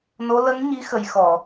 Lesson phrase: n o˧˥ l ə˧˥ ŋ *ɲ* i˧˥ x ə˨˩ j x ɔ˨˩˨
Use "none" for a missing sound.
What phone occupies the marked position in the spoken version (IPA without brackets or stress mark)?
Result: ɲ